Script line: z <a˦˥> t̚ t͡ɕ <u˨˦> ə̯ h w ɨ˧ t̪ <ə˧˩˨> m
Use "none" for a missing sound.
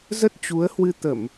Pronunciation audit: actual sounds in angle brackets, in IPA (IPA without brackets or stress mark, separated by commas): ə˦˥, u˨˦, ə˧˩˨